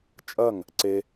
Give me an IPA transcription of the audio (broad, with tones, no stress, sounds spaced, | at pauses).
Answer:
t͡ʃʼ ɐ˥˩ ŋ | ǀ e˨